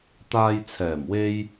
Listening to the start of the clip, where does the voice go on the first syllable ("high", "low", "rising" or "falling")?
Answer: low